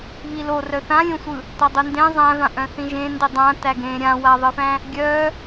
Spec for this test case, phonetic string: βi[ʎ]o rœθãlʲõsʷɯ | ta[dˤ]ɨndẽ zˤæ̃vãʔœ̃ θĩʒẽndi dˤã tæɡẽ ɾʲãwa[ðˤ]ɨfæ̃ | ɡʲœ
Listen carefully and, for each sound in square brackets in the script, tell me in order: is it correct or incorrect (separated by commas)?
incorrect, correct, correct